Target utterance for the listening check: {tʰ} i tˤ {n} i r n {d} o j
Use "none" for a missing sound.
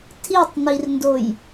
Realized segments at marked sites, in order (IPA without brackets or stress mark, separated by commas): tʰ, n, d